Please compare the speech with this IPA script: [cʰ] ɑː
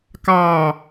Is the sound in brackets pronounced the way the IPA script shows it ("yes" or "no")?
no